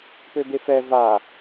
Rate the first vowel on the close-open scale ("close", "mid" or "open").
mid